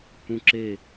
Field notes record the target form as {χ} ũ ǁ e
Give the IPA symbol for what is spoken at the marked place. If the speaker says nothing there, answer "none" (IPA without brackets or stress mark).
h